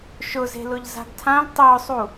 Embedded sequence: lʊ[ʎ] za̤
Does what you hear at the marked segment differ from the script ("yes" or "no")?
no